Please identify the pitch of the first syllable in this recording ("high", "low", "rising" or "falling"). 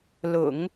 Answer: low